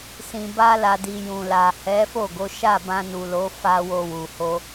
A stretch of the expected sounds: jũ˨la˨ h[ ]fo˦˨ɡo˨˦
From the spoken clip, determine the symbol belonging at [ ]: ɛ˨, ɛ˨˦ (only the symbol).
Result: ɛ˨˦